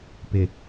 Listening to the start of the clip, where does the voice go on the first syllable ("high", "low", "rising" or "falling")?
low